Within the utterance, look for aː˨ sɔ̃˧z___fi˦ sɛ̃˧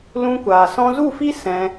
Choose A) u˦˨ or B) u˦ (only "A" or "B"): A